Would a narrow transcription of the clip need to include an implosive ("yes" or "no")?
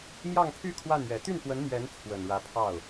no